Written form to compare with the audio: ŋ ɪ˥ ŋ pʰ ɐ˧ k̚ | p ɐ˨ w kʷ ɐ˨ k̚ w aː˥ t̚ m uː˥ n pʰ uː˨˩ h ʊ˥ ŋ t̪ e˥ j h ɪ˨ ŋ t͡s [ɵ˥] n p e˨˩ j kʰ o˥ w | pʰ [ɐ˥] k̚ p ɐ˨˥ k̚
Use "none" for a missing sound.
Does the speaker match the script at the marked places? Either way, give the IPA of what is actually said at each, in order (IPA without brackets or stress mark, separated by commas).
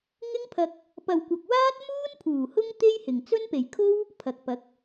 ɵ˥, ɐ˨